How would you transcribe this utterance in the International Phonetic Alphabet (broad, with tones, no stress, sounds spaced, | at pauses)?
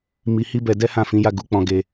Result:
m i˧ h i˦ b ɛ˧ d ɛ˦ h ã˦˨ f ĩ˨˦ j a˦˨ ɡ u˧ k͡p ɔ̃˧ ɡ e˧